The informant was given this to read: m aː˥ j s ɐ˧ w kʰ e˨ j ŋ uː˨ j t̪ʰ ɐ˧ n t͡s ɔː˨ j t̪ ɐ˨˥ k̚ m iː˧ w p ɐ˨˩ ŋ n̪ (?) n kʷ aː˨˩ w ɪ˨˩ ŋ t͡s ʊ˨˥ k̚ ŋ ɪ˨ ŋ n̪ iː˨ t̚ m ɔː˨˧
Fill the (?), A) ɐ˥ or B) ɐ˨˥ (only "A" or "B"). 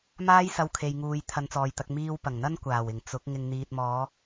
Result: A